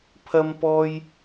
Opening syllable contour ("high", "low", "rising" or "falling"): high